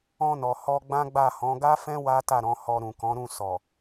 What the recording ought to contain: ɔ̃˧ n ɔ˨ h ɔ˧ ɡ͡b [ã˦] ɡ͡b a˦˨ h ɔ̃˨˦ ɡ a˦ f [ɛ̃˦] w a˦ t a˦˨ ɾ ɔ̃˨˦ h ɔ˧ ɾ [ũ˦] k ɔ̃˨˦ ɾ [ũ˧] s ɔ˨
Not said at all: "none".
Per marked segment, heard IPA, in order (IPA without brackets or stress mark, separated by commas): ã˦, ɛ̃˦, ũ˨, ũ˦˨